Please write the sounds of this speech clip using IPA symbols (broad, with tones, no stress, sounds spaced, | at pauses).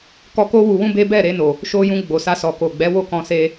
k ɔ˧ k o˦ w u˧ w ũ˦ b e˦ b ɛ˦˨ ɾ e˧ n o˨ | ʃ o˧ j ũ˧ ɡ͡b o˨ s a˧ s ɔ˨ k o˨ ɡ͡b ɛ˨˦ w o˦˨ k ɔ̃˧ s e˧